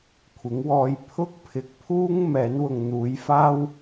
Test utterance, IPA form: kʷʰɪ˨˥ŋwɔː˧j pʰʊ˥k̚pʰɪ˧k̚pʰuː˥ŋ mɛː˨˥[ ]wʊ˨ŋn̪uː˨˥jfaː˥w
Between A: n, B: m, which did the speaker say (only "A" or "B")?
A